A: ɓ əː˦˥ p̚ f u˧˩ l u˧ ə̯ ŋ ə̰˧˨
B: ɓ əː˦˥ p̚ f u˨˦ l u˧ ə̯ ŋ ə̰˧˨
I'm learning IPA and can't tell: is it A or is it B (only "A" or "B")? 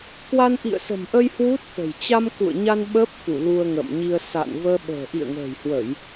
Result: A